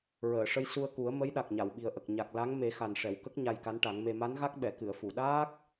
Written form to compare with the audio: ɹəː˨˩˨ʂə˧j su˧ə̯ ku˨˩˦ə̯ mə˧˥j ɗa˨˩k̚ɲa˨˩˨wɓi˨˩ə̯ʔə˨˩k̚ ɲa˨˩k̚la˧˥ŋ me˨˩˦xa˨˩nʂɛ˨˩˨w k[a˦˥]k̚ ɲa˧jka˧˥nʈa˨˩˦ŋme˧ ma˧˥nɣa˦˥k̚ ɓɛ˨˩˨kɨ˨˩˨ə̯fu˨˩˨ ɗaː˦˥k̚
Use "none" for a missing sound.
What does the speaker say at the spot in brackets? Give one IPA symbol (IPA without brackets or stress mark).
ə˦˥